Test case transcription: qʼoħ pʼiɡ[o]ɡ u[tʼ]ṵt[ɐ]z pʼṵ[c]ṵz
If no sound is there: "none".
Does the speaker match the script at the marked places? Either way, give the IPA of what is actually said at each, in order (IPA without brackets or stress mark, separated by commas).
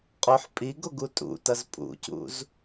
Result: o, tʼ, ɐ, c